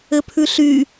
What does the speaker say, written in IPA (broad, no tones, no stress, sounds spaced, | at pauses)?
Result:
ɘ pʰ ʉ ɬ y